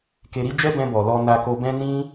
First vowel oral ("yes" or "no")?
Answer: yes